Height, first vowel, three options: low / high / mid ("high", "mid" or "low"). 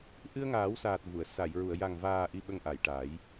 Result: high